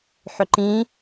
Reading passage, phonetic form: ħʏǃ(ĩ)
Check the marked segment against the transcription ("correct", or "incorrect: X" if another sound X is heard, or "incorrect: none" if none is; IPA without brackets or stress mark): correct